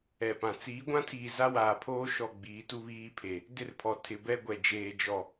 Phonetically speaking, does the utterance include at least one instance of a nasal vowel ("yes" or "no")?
yes